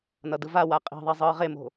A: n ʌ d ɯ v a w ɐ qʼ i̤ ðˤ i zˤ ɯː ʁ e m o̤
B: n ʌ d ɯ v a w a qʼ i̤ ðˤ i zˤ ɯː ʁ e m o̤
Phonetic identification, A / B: B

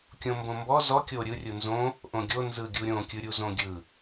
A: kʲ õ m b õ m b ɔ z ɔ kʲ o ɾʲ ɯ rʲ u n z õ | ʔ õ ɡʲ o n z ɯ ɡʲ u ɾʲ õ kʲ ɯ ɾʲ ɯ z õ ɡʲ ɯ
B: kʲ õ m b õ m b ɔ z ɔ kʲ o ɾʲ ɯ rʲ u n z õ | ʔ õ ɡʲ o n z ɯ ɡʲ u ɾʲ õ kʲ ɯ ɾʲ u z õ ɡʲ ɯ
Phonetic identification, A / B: B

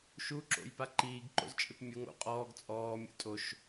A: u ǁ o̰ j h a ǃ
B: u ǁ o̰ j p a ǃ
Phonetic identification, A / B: B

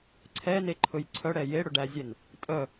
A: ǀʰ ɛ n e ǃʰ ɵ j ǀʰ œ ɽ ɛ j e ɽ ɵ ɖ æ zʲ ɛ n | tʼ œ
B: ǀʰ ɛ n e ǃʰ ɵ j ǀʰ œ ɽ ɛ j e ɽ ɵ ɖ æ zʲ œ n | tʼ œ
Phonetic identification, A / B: A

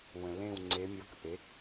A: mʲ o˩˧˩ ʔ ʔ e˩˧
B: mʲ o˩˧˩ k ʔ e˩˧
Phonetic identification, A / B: B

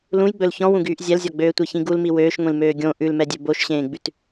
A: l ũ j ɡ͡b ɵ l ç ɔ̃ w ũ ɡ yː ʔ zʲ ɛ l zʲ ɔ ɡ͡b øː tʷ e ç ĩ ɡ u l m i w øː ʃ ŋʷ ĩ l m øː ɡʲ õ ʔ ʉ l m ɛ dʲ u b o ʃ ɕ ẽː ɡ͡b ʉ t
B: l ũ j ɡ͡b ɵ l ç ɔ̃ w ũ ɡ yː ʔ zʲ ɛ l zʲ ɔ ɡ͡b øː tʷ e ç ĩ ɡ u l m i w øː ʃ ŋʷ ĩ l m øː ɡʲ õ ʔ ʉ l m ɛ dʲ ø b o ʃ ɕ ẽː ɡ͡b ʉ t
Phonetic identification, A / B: B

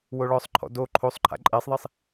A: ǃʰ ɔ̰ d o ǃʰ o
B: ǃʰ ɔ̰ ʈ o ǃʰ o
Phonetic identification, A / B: A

